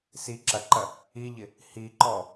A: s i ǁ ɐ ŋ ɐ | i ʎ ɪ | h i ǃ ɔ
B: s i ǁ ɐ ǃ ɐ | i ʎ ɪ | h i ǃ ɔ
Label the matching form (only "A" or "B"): B